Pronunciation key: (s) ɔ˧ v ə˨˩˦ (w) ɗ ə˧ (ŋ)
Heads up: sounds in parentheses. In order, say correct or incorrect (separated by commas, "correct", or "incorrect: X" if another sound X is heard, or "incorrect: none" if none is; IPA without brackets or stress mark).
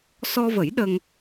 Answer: correct, incorrect: j, correct